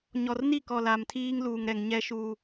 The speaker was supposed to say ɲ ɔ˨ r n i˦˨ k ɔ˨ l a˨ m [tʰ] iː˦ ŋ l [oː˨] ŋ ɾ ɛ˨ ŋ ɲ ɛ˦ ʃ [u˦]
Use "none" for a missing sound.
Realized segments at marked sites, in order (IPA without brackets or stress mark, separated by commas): tʰ, uː˨, uː˦